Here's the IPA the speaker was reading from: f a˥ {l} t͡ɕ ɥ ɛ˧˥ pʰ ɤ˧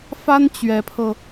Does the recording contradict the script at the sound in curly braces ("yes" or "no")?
yes